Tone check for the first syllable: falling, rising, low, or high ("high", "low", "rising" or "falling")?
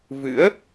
rising